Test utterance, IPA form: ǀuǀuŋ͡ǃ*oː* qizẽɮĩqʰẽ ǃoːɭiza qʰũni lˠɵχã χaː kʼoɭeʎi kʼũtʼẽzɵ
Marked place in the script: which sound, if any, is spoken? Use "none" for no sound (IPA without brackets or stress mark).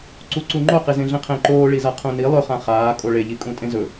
o